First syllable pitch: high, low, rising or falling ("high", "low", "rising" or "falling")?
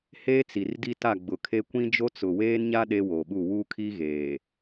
high